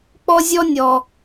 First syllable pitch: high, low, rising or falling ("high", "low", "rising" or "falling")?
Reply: high